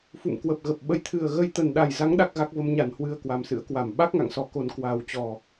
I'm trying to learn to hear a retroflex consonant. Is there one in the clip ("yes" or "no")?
no